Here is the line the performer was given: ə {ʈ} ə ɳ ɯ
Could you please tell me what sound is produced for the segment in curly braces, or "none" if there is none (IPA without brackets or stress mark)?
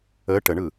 ʈ